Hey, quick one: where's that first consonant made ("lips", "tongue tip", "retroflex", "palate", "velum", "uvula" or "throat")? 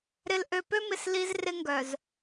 tongue tip